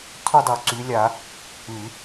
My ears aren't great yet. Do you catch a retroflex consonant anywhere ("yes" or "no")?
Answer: no